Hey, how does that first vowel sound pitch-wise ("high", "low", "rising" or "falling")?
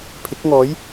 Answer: rising